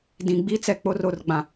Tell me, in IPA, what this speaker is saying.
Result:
d ĩ˨ ɡ͡b i˦ t͡s ɛ˨ k͡p o˦ r o˦˨ r ɡ͡b ã˨

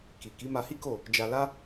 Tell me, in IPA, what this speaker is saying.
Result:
k i˨ k i˨˦ m a˧ h i˦ k o˦˨ | d͡ʒ a˧ l a˦

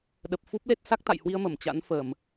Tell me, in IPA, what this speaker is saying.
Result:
ɗ ə˨˩ p̚ f u˦˥ p̚ l e˦˥ t̚ s a˦˥ k̚ t̪ a̰˧˨ j h w i˧ ə̯ m ə˧˩ m t͡ɕ a̰˧˥ n f ə˧˩˨ m

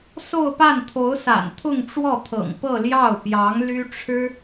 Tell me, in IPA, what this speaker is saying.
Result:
s o˥˧ ʊ̯ p a˥˩ n t̪ʰ o˧˥ ʊ̯ s a̰˨˩ n t̪ʰ ʊ˥˧ ŋ ʈ͡ʂ w ɔ˥˩ t̪ʰ ɤ̰˨˩ ŋ p ɤ˥˧ l j ɑ˥˩ ʊ̯ p j ɑ˧˥ ŋ l y˥ ʈ͡ʂʰ ɻ̩˥

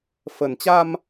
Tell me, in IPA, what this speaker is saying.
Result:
f ə˨˩ n t͡ɕ a˧ m

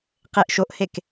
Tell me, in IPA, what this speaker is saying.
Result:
q e ʔ ʃ o ʔ h e k

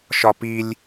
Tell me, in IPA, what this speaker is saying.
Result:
ʃ ɒ p i lʲ

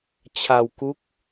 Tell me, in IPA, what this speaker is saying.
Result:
t͡ɕʰ a˧ w k u˦˥ k̚

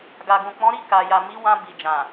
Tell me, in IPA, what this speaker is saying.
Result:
ɡ a˨ ɡ ũ˨ k͡p ɔ̃˨˦ ɾ i˦˨ k a˨ j a˨ m i˨˦ w ã˧ b i˨ d͡ʒ ã˨

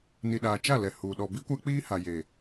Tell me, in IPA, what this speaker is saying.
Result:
n i˨ ɗ aː˨ t͡ʃ a˦˨ l ɛ˨ h u˨ ɗ ɔ˨ b i˦ kʷ a˦ k͡p iː˦ h a˨ j e˨

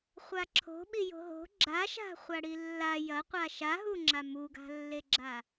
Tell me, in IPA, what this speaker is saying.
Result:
χʷ a ǁʰ o̤ ɓ i j o̤ ɦ o̤ ɡ͡ǁ a ʃ a̤ χʷ a ɽ i lː a j ɐ qʷ a ʃ a ɦ u ŋ͡ǁ a m u ɡ a̤ lː e ɡ͡ǁ a

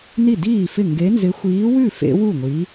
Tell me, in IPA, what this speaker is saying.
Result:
n i˥˩ d iː˥˩ f ɪ˥˩ ŋ ɡ e˨˥ n z ɪ˨˥ xʷ iː˨˥ w ʉ˥˩ f ḛ˨˥ w u˥˩ ŋʷ i˨˥

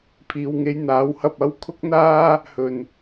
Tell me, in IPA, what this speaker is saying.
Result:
pʰ iː˨ w ŋ e˧ j n̪ aː˨˥ w h ɐ˧ p̚ ɐ˥ w kʰ ʊ˥ k̚ n̪ aː˥ | h ɵ˨˩ n

